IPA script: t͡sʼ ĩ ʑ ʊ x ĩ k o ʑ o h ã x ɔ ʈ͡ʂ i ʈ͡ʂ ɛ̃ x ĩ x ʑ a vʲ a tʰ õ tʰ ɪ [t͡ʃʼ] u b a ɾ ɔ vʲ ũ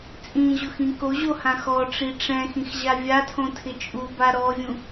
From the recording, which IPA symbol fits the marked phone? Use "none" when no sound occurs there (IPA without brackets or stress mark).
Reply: t͡ʃʼ